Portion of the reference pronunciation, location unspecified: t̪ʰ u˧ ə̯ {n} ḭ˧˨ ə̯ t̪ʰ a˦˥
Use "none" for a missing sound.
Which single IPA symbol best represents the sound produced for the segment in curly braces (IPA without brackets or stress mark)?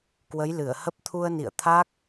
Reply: n